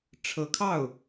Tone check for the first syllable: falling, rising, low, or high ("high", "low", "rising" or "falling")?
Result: rising